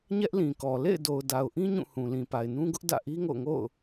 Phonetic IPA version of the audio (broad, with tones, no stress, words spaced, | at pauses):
ɲɛ˦ʔlĩ˨kɔ˨ lḛ˦˨ɪ̯do˨ʊ̯da˨ʊ̯ʔĩ˦ ɲũ˦˨hũ˨lĩ˨pa˨ɪ̯ nũ˦ɡʊ˦ʔ dä̰˦˨ʔi˦ŋo̰˦˨ʊ̯ŋo̰˦˨ʊ̯